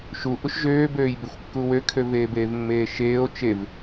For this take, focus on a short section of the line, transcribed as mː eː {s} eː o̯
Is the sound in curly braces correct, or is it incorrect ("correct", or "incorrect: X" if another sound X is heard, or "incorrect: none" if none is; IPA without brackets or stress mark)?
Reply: incorrect: ʃ